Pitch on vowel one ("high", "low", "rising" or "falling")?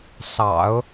low